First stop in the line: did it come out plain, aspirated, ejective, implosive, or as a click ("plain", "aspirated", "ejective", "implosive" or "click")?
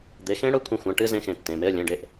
plain